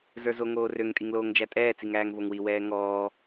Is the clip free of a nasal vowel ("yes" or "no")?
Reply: yes